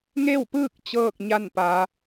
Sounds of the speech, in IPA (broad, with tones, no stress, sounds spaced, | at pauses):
ŋ e˥˨ w p ɯː˥˨ k̚ t͡ɕ ɤː˥˨ k̚ ɲ a˥˨ n p aː˩˧